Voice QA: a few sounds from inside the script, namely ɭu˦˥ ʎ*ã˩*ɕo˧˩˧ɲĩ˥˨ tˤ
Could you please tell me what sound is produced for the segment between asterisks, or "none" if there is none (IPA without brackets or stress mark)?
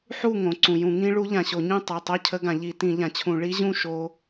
ã˩